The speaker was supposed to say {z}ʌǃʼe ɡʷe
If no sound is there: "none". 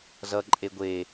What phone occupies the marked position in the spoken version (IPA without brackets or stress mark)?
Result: z